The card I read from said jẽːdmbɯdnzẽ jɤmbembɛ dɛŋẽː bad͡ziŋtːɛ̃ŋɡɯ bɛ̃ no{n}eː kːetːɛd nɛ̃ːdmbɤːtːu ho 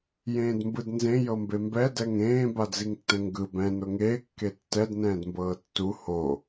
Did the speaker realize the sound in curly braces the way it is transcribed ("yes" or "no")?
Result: no